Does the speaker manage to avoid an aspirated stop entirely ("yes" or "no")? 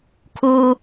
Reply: no